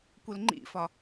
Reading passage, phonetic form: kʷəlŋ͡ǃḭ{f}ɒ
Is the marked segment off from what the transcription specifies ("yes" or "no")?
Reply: no